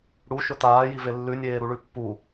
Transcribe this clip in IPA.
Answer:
ɽuʃɵ t̪aːjive lːʉnʲeːɾuɭʉ pːu

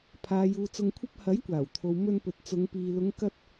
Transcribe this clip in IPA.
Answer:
pʰaː˨juː˨ t͡sʊ˧ŋkʷʰɐ˥p̚ hɐ˨˥jkʷaː˨˩wt̪ʰo˨w mɵ˧npɵ˨t̚t͡sʊ˨˧ŋpiː˨ lʊ˨˧ŋkɐ˧t̚

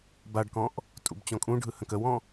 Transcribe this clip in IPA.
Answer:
baɖkɔ̃ʔ | tʼṵbt͡ɕɔ̃kʼũɖʱɯ hə̃kəwɔ̃

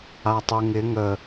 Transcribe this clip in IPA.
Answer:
atˤʉŋɪ ŋə

